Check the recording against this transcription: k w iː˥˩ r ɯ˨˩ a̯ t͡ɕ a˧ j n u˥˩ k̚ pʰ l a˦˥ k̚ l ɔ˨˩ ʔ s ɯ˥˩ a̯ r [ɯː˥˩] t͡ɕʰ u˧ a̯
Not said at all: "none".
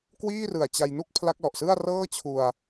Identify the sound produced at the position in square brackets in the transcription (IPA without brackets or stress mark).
ɤː˥˩